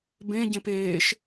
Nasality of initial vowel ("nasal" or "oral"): nasal